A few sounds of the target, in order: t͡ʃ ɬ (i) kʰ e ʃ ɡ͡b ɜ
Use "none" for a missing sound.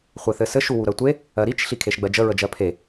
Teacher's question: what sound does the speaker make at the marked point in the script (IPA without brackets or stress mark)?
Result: i